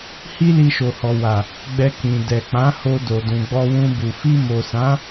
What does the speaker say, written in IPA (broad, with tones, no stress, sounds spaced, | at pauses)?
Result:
h i˦ l i˧ ʃ o˨ h ɔ˨ w a˨ | ɡ͡b ɛ˧ k ĩ˨ d ɛ˨ k͡p ã˨˦ h o˧ d o˨ d ũ˨ ɡ͡b ɔ˧ w ũ˧ b u˨ f i˧ m o˨ s ã˨˦